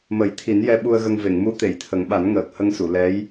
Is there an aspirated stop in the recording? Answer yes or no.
yes